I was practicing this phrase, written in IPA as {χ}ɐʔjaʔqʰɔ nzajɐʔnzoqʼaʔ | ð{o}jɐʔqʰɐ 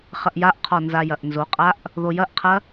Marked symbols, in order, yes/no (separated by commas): yes, yes